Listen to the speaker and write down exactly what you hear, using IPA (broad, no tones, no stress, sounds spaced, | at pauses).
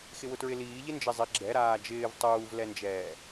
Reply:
x ɪ w ʊ t ɹ ɪ l iː ʎ ɪ n d͡ʒ ɪ zˤ ɪ ɡ͡ǁ ɛ ɾ aː d͡ʒ ɪː v tˤ uː v l ɛ n d͡ʒ ɛː